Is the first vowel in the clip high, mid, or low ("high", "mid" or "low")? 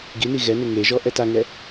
high